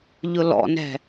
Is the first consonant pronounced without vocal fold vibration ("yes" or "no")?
no